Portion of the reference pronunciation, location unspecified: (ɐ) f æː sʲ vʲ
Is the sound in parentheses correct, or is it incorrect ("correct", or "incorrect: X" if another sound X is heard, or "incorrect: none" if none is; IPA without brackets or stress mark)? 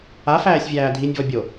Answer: incorrect: a